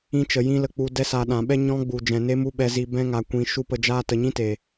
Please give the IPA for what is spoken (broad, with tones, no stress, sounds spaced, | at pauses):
ĩ˧ t͡ʃ ə˨ j ĩ˦ l ə˧ k͡p u˧ d ɛ˧ s a˨ ɗ ã˨ ɓ ɛ˦ ɲ ɔ̃˧ ɡ͡b u˨ d͡ʒ ɛ̃˨ n e˦ m u˦ ɓ ɛ˧ z i˧ b ɛ̃˧ ŋ a˨ kʷ ĩ˨ ʃ u˦ p ə˧ d͡ʒ aː˦ t ə˨ ɲ ĩ˦ t e˨